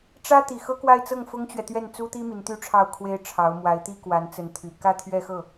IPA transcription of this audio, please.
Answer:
ʈ͡ʂ ä˥ t̪ i˨˩ x ɤ˥ k w a˥˧ ɪ̯ t͡s ɤ˥˩ ŋ f ʊ˥ ŋ t͡ɕ ɥ ɛ˨ t̪ ɥ ɛ˥˩ n t͡s u˥ t̪ i˥ m i˧˥ n t̪ y˥ ʈ͡ʂʰ ɑ˥˩ ʊ̯ kʰ w e˥ ɪ̯ ʈ͡ʂʰ ɑ˧˥ ʊ̯ m w a˧˥ ɪ̯ t̪ i˥ k w a˧˥ n t͡s ə˧˥ n t̪ʰ y˨˩ k ä˥˧ t̪ʰ ɥ ɛ˥˧ x ɤ˥˩

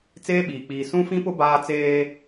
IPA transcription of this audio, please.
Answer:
t͡s eː˦ ɓ iː˨ k͡p iː˨ s ũ˦ f ĩ˦ p ʊ˦ b aː˦ t͡s eː˦

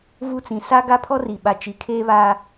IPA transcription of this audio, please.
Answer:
v u˦˨ t͡s ĩ˨ s a˦ ɡ a˦ pʰ ɔ˦ r i˨ ɓ a˨ t͡ʃ i˨ kʰ eː˦ β aː˦

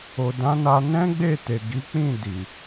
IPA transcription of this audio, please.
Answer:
o˨ d ã˨˦ n a˧ n ɛ̃˦ ɡ͡b e˦˨ t e˨ ɡ i˨˦ k͡p ĩ˦˨ d i˨

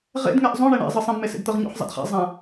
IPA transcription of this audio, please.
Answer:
ʁ ḛ d ŋ ɛ ʔ zˤ õ ɳ e ɳ ɛ̰ zˤ ɤ sˤ ẽ b m e s ḛ d t̪ ɤ ʁ ɲ o̰ ħ zˤ ḛ d χ ɛ̰ zˤ ã

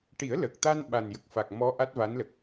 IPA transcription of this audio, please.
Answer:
ʈ i˨˩˦ ə̯ l ə˨˩ k̚ t̪ a˧ n ɓ a˨˩ n j ə˨˩ k̚ f a˨˩ k̚ m ɔ˧˥ ʔ a˦˥ t̚ v a˧˥ n l ə˨˩ k̚

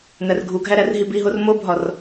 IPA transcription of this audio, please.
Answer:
n̪ æ r ɡʱ u ɡʱ æ ɾ æ r ɦ i b i ɦ o r m o bʱ ɒ r

